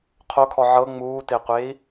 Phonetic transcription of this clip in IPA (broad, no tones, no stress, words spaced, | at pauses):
qʰokʰɔ ʕɤ ŋ͡muːteqʷei̯